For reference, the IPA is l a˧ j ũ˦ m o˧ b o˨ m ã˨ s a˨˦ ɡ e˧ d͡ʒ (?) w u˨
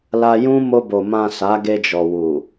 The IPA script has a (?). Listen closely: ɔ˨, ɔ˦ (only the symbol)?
ɔ˨